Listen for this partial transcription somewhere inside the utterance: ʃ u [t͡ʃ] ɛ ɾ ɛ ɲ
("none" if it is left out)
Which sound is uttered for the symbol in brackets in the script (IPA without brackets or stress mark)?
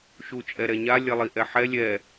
t͡ʃʼ